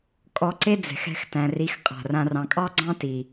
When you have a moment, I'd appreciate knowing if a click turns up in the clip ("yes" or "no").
yes